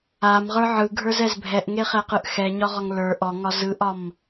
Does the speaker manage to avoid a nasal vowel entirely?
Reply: yes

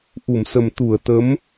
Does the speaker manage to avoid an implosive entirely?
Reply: yes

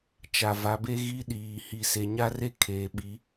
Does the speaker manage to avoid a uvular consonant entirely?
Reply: yes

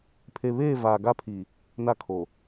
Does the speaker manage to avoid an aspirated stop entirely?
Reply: no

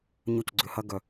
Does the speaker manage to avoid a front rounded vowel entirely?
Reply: no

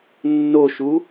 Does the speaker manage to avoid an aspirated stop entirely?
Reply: yes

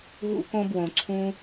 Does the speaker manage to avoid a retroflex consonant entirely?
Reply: yes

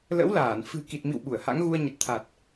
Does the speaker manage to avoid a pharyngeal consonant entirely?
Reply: yes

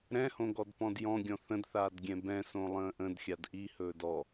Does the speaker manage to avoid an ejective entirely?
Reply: yes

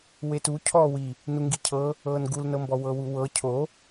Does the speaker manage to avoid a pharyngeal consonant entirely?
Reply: yes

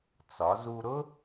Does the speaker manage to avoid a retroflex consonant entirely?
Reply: yes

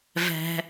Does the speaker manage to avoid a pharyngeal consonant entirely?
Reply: yes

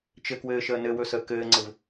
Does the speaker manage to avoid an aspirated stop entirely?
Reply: yes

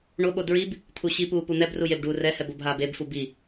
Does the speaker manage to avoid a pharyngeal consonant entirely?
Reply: yes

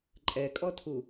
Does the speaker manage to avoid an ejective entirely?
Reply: no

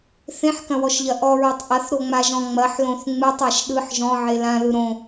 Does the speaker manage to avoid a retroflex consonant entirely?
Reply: yes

